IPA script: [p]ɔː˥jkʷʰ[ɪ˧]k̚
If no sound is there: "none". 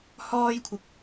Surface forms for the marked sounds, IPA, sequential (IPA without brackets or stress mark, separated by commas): h, ɪ˧